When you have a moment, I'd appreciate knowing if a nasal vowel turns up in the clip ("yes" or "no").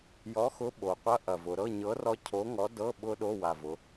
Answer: no